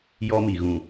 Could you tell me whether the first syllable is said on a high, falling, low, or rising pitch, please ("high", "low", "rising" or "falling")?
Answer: high